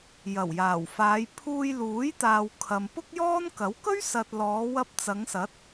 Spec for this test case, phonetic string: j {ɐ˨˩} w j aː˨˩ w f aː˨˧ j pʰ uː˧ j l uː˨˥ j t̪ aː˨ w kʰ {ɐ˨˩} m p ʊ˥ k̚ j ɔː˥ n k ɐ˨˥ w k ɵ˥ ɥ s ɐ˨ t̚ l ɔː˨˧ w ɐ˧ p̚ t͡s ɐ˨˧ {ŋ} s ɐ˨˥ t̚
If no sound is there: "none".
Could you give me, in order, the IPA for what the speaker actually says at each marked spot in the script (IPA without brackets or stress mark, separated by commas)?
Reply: ɐ˨˩, ɐ˨, ŋ